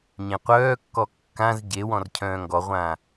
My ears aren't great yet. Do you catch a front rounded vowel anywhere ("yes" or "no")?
yes